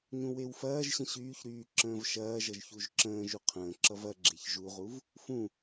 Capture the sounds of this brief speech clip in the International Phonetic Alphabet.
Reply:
ɲũwewfɐːʒɕə̃ ɕyːçɾyː ǁə̃ːvʃɐːʒʌʒ çuʒǁə̃ːʒu qʰə̃ːǁʌv ɐɡ͡ǁeç ʒuʁuv | fũ

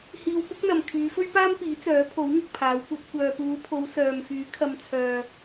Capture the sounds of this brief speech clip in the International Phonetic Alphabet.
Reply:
hiː˧wpʊ˥k̚n̪ɐ˨m kʰyː˨˧fɵ˥ɥpaː˥mpiː˨˥ t͡sœː˨˥pʰo˨˥wŋʊ˨k̚ pʰaː˨˥wkʷɐ˨˥t̚ kʷœː˨puː˨˧pʰo˨˧w sœː˨mfyː˨˥ kʰɐ˧mt͡sʰœː˧

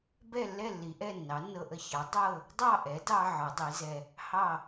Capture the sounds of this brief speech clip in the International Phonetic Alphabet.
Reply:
bɛ˥˨lːɛ˥˨lːi˩˧ʔɛ˥˨ nːɑ˩˥nːɤ˧ʔə˧çɑ˩˥ dˤɤ˥˨ | dˤɑ˥˨ʔɛ˩˥dɑ˧ ʕɒ˩˥dˤi˩˥zɛ˧ | hɑ˥˨

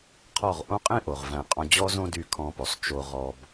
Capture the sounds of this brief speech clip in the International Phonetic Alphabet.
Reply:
qʰɔ˦˨ʁ ʔõ˦qʼĩ˦ʔo˨ʁ væ̃˦˨qʼɔ̃˦ d͡ʑɔ˦zõ˦ dy˦˨ kʰɔ̃˧po˨sˤ t͡ʃo˧ʁɔ˧b

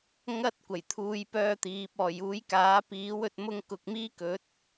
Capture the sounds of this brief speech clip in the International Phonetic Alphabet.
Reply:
ŋɐ˥t̚kʷɐ˨˩j t̪ʰuː˥jpœː˥t̪iː˨˥p̚ ɔː˨˩juː˨˥jkaː˨˥ piː˨˥wɵ˨t̚mʊ˧ŋkʊ˨k̚ miː˥kɵ˨˥t̚

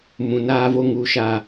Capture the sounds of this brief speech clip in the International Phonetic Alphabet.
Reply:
mũ˨naː˦vo˦ ŋu˨ʃa˨

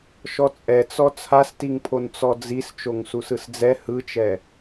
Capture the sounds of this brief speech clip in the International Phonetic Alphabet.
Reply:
ʃɔt͡sʼɛt͡sɔ t͡sʰastiŋpʰon t͡sɔd͡zis t͡ʃoŋsusɯsd͡zɛ hɯt͡ʃɛ

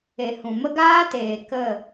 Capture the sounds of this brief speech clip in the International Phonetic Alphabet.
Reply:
e˨hũ˨mə˦ ɡaː˦teː˨ kə˦˨

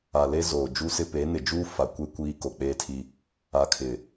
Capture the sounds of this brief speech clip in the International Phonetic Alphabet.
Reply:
a˨le˦ zoː˨d͡ʒu˦sɪ˦ pe˨˦nɪ˨d͡ʒuː˦ fa˨ kʷe˦ kʷiː˦ko˨k͡peː˦tʰi˦ | a˨kʰɪ˨

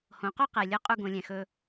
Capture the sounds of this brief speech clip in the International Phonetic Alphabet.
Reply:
hõ˩˧qo˥qɛ˩lʲɵ˧˥ qʼu˥ɡõ˩˧lʲɛ̃˩ xɵ˧

